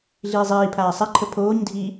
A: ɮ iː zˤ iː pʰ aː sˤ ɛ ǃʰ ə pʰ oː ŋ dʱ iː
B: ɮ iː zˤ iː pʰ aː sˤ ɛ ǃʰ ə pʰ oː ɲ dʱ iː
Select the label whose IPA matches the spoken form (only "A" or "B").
B